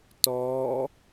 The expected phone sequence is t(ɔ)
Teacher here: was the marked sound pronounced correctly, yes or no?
yes